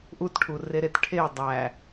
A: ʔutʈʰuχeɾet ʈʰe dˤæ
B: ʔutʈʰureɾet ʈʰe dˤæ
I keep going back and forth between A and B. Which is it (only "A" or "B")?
B